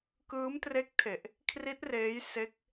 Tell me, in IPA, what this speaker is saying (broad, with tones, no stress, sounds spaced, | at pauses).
k ɯː˦˥ m t r e˦˥ k̚ tʰ e˨˩ ʔ | kʰ r i˦˥ t̚ r eː˦˥ j s e˦˥ k̚